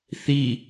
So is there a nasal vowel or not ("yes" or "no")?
no